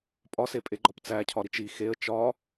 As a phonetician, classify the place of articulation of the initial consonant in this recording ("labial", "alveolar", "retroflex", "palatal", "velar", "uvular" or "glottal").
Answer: labial